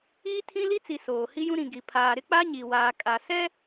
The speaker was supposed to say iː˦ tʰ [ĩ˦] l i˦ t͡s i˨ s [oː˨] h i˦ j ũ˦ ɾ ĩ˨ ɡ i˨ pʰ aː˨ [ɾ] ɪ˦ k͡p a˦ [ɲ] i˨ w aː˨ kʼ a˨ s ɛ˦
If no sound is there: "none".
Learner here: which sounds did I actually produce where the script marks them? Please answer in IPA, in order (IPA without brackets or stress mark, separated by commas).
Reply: ĩ˦, oː˨, ɾ, ɲ